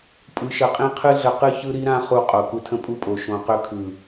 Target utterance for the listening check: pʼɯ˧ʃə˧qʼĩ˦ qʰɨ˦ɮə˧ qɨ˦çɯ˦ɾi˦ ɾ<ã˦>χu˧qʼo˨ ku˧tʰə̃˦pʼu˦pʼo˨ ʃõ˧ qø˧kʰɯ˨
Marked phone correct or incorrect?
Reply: correct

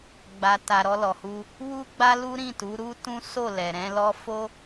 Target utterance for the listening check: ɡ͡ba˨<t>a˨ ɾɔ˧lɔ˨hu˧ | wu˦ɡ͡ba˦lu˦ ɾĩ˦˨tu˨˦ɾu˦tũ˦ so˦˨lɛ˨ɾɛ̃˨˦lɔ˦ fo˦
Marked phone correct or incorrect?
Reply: correct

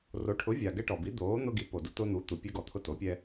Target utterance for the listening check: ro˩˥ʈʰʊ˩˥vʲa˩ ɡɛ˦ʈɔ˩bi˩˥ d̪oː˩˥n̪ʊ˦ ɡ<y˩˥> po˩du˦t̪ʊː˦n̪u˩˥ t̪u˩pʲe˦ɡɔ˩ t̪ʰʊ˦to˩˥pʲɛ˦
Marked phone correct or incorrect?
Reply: incorrect: i˩˥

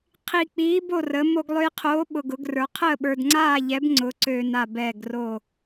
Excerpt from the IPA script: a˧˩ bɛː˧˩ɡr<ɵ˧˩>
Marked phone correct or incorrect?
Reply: incorrect: o˧˩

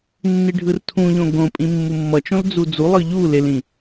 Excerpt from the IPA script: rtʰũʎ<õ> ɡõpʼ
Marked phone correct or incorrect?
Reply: correct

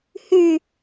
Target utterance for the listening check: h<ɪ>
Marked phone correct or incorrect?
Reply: incorrect: y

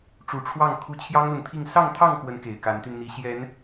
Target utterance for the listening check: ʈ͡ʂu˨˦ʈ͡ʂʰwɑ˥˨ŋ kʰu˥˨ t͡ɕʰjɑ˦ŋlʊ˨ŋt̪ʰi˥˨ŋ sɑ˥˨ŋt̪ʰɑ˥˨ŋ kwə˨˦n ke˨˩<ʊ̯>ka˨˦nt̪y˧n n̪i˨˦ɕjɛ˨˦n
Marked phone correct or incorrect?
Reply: incorrect: ɪ̯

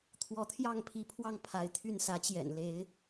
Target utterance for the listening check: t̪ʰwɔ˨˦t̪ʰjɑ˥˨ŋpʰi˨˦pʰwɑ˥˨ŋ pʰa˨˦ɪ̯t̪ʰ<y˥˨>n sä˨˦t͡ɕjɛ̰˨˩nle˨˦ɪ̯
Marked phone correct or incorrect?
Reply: correct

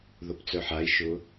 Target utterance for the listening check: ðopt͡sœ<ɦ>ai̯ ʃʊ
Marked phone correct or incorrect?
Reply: incorrect: ħ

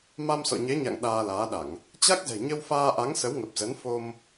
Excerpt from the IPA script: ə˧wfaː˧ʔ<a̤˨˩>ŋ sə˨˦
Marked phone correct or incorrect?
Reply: incorrect: a˨˦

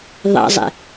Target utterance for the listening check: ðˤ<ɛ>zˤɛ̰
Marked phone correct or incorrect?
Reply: incorrect: ɛ̰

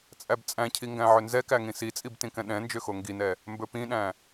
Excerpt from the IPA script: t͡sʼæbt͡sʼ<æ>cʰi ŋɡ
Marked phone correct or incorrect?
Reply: incorrect: æ̃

